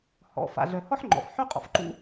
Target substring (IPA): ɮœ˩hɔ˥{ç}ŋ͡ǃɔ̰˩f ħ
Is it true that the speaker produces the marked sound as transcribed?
no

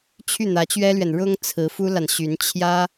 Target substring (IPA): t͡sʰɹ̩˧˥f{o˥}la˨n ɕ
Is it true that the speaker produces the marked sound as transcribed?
no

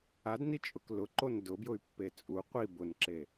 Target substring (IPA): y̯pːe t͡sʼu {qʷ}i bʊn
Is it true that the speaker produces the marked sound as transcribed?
yes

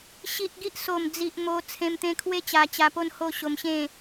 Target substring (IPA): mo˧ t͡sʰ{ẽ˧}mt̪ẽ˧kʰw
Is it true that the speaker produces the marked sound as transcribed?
yes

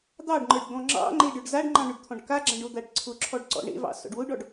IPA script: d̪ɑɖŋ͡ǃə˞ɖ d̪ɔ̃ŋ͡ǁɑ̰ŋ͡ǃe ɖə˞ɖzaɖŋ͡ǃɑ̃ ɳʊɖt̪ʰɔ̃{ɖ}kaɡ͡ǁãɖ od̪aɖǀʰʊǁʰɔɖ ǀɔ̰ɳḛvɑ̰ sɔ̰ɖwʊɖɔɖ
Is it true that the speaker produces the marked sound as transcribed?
yes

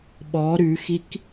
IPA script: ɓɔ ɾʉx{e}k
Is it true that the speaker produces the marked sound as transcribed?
no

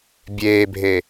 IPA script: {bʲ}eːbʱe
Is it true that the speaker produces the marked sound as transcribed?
yes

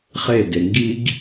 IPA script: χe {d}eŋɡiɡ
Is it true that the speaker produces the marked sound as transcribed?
yes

